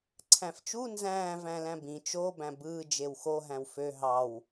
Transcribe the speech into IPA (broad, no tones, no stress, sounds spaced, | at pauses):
ǀʰ æ̃ f t͡ʃ u n z æ̃ː v æ̃ l æ̃ b ĩ t͡ʃ o b æ̃ b ɯː d͡ʒ e w x o ɦ æ̃ w f ø ɦ ɑ w